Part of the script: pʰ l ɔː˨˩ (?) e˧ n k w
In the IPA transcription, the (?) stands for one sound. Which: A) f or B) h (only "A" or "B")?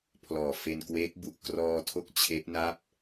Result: A